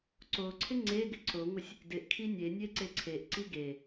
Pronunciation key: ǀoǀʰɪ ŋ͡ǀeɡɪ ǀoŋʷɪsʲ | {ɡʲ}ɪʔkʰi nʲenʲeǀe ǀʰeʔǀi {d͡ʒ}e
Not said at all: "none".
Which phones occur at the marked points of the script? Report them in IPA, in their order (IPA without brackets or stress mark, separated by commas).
d, ɡ